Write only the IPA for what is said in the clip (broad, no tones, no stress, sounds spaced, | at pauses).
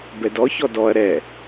b ɛ d ɔ ç ɔ d ɔ ɐ̯ ɾ ɛ